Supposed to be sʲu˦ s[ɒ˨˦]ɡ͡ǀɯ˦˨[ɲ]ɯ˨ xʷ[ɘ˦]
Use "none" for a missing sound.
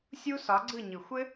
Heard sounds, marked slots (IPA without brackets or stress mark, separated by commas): ɒ˨˦, ɲ, ɘ˦